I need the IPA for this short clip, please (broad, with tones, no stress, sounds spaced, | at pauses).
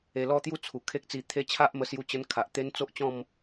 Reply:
e˧ l ɔ˦ t̪ j u˥˧ t͡sʰ u˨˩ kʰ e˦ k̚ t͡s i˧ t̪ʰ e˦ t͡ɕʰ a˦ ʔ m ə˧ s j u˧ t͡ɕ ə˧ n kʰ a˨ ʔ t̪ e˦ n t͡s o˦ ʔ t͡ɕ ɔ̃˥˧ m